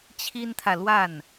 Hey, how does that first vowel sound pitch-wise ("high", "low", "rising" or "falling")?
high